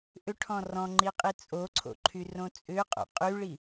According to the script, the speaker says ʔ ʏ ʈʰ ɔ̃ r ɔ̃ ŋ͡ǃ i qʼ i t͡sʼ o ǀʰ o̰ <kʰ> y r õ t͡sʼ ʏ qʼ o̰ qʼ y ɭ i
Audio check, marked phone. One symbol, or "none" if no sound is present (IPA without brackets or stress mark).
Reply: ǃʰ